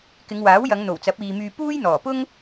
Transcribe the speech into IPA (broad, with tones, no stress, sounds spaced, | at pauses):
k ɪ˨˧ ŋ w aː˨˥ w j ɐ˨˧ ŋ n̪ o˨˩ w t͡s ɐ˨˥ p̚ iː˨ m yː˧ p uː˥ j n̪ ɔː˨˩ p ʊ˥ ŋ